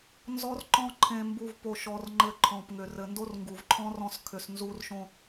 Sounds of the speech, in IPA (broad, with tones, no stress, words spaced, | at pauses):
nzɔ˦rǃɔ̃˦ǃʰẽ˧mbu˧v po˧ʃɔ˧rŋ͡ǃɘ˧ ǃʰɔ̃˨pŋʏ˨ rɘ˨ ndo˦rŋɡu˨vǃʰɔ̃˦ rɔ̃˧s kʰʏ˨s nzu˧rʃõ˧